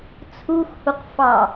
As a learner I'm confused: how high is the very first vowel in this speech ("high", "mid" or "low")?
high